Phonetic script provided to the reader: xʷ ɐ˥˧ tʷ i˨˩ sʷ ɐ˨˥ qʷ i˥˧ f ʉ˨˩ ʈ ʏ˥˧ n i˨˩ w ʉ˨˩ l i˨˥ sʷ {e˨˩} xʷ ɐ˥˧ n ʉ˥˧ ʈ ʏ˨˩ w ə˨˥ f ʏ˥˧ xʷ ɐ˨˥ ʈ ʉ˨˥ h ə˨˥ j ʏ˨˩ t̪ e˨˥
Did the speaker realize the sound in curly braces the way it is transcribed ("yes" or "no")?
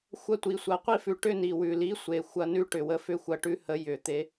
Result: yes